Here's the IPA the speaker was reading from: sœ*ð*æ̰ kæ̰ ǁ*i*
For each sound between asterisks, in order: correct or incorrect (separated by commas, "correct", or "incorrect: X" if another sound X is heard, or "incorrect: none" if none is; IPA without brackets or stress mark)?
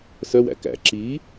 incorrect: w, correct